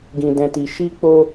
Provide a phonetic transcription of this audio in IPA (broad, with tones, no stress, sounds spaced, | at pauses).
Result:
ɡ ĩ˨ d ɛ̃˨ t i˨ ʃ i˧ k͡p o˧